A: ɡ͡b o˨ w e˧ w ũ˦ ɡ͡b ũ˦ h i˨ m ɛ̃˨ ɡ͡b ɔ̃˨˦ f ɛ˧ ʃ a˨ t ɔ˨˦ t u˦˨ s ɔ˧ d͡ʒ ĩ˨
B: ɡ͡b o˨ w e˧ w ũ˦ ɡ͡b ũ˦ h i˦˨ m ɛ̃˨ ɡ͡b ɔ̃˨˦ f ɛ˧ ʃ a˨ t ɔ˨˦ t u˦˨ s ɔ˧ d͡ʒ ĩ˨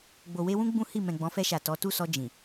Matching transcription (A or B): B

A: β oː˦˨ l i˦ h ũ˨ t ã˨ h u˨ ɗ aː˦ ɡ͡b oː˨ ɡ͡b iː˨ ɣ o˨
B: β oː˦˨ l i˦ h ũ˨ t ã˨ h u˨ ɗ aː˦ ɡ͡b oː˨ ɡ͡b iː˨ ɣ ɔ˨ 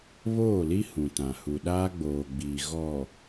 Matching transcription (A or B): B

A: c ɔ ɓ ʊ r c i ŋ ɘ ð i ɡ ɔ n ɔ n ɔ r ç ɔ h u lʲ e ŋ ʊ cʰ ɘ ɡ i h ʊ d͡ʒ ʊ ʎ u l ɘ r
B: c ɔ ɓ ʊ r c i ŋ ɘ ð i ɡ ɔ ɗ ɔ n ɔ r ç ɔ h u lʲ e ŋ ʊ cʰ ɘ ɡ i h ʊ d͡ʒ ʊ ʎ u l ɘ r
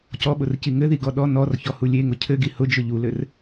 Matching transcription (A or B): B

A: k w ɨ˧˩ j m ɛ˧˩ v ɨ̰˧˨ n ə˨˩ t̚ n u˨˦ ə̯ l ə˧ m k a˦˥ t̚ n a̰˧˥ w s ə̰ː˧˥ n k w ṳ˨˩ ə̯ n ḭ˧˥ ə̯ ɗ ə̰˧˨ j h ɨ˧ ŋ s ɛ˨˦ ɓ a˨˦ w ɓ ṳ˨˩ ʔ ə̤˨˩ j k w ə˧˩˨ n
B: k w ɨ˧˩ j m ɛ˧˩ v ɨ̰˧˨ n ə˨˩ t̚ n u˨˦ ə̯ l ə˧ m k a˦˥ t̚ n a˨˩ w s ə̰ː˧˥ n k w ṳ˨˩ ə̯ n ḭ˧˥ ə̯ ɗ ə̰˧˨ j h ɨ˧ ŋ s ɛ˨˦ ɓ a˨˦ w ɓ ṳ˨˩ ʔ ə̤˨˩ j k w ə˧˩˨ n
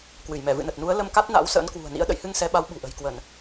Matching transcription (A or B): A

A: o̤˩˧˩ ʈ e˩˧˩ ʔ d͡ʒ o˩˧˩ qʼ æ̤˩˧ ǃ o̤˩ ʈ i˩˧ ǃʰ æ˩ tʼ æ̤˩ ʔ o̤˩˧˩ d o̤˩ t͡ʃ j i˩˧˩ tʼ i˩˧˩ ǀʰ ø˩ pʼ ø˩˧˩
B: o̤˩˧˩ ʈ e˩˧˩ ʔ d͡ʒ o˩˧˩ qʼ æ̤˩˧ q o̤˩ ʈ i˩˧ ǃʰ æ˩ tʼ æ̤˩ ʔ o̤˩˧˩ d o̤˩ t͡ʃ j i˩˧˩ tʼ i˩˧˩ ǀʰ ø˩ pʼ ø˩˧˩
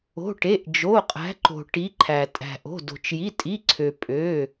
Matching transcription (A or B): A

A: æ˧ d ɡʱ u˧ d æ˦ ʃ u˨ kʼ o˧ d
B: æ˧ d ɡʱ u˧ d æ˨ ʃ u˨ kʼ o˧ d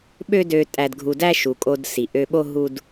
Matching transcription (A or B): A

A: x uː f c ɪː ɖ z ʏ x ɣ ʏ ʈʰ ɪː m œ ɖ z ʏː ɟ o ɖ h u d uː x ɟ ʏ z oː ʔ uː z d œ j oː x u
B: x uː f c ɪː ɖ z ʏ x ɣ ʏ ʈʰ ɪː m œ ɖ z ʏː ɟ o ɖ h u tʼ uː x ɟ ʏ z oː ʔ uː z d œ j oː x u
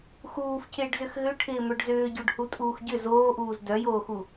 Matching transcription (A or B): B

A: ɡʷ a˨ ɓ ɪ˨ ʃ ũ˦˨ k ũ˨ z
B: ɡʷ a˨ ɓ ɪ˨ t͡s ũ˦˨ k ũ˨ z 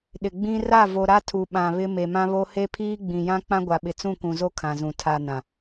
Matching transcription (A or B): B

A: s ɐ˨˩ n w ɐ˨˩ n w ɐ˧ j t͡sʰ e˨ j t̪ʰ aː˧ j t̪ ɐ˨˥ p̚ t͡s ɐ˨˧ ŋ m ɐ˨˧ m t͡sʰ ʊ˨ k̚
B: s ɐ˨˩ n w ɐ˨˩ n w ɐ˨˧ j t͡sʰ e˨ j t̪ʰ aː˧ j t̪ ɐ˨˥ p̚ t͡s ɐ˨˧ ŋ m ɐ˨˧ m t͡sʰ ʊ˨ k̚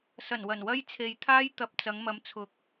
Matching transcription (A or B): A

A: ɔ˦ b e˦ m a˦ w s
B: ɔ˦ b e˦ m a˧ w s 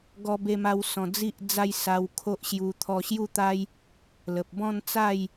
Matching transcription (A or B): A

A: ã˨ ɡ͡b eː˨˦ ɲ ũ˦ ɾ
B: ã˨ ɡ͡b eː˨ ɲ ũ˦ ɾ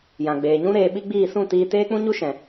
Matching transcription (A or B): B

